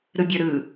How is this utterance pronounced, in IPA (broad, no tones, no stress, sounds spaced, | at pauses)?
ɾ ɯ bʲ ə˞ ɾ ɯ